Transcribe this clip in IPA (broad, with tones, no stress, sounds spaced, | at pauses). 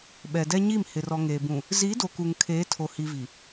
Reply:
ɓ ɛ˨ d ɛ˦ ɲ i˦˨ m h ɪ˨ r ɔ˨ ŋ eː˨ b ũ˨ | z iː˨˦ d o˨ k u˨ ŋ kʰ eː˨˦ tʰ o˨ h i˨ v i˨